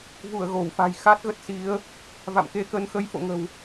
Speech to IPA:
v u˧˩ ə̯ ɣ o˧˩ w f a̤˨˩ j x a˦˥ t̚ ɣ ə˦˥ t̚ s i˨˦ ə̯ | v a̰˧˨ m k e˧ k ə˧ n x ə˨˦ j f o̰˧˨ ŋ ə̤˨˩ w

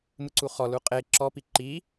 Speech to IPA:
m ɯ ǀ u χ ɔ l u qʼ e ǁ ɔ p i ǃ i

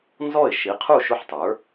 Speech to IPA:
n z ɔ˥˩ ɪ̯ ʃ i˩˥ qʰ u˥˩ ʃ ʊ˥˩ ħ tˤ ə˞˩˥

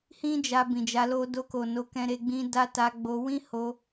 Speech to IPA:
h ĩ˦ d͡ʒ a˧ b ĩ˨ d͡ʒ a˧ l o˦ d o˧ k o˨ n o˧ k ɛ̃˧ ɾ e˧ ɡ͡b ĩ˦ d a˦ t a˧ ɡ͡b o˧ w ĩ˦ h o˧

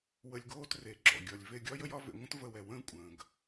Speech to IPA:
w ə˧ lʲ ɡ oː˦ t r e˨˦ ɡ͡ǁ ɔ̰˨ ɡʲ ɒ˨ lʲ v e˧ ɡʲ ɒ˦ j ə˦ j ɒ˦ v ḛ˧ ŋʷ ə̃˦ t v ə˧ w ɛ˨ w ə̃ː˦ kʷʼ ə̃ː˨ ɡ

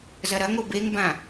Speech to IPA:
z ɐ ɾ ɐ ŋ o b e ŋ b ã

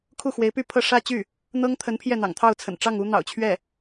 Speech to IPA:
kʰ u˥˩ x w e˧˥ ɪ̯ p y˥˧ pʰ ɤ˥˧ ʂ ä˥˧ t͡ɕ y˥˩ | n̪ ɤ˥ ŋ t̪ʰ ə˧˥ n pʰ j ɛ˥˩ n̪ ɑ̰˨˩ ŋ t̪ʰ ɑ˥˩ ʊ̯ t͡sʰ ə̰˨˩ n ʈ͡ʂ ɑ˥˩ ŋ u˥ n̪ ɑ̰˨˩ ʊ̯ t͡ɕʰ ɥ ɛ˥˩

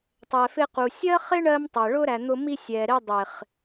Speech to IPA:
tˤ ɛ˨ f ɪ˧ q u˨ sʲ ɜ˦ χ ɪ˦ ɳ ɜ˦ m tˤ ɛ˨ ɭ ʊ˦ ɾ æ˨ n̪ ʊ˧ m i˧ sʲ ɛ˨ ɾ ɪ˧ dˤ ɪ˨ χ

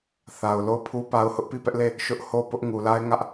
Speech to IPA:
θ a˨ ʊ̯ l o˦˨ ʊ̯ pʰ u˦ p a˦ ʊ̯ h ʊ˦ ʔ p i˦˨ p ɛ˦ ʔ l e˦˨ | ʃ ʊ˦ ʔ h o˦˨ p ʊ˦ ʔ ŋ u˨ l a˦ ɪ̯ ŋ ä˦ ʔ

